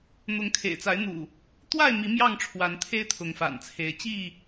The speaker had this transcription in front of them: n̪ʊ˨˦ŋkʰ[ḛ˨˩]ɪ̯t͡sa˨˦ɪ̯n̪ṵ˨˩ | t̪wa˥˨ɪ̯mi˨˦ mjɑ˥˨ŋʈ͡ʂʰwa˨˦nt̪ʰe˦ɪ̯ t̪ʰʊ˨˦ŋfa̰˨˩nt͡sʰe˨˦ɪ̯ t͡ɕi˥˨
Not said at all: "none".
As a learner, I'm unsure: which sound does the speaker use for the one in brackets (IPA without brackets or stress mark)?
ḛ˨˩